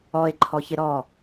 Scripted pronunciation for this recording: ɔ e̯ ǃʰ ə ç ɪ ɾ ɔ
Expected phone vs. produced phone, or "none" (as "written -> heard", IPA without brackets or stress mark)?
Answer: ə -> ɔ